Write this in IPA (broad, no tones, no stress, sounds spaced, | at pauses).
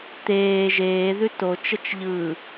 t̪ eː ʒ eː ð ʉ t o t͡ʃ ə t͡ʃ ʎ ɯ